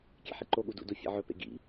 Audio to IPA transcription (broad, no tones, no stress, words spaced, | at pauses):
kʲḛħiǃoɠu dṵdu fʲḛʕɵpḛ ɡḭ